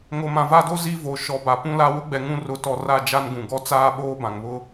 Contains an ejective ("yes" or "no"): no